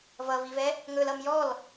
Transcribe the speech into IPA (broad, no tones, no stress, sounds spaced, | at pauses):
v ʌ v i v ɛ | ŋ ɵ l ʌ m j ɔ l